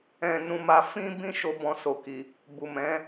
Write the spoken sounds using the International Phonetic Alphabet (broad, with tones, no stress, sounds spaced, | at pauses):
ɛ̃˨ n ũ˨ m a˨ f ĩ˧ b ĩ˧ ʃ o˦ b ɔ̃˧ s o˨ k i˨ | b u˨ m ɛ̃˨˦